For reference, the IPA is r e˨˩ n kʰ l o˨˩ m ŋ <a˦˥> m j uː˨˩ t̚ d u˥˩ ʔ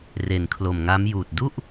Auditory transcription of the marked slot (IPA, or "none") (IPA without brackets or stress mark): a˦˥